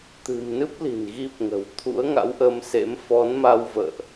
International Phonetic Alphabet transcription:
t̪ɨ̤˨˩mnɨ˦˥p̚ li̤˨˩nɣi˦˥p̚ŋə̤˨˩w t̪ʰṵ˧˥ə̯ŋa̰˧˥wʔəː˧msḛ˧˥m fɔ˨˦nma˧w və̰ː˧˨ʔ

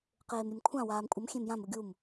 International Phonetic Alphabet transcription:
qeːmɾʲemkʷʰã waːmkʷʼʌm xʲẽmjãm uɡʲum

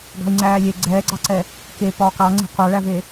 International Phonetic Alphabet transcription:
ɡɑ̤i̯ŋ͡ǀæːlʲe ɡ͡ǀɛːɡ͡ǀɑǀɛ | ke pɒːkɑŋ͡ǀe̤ qʷɑɭæve

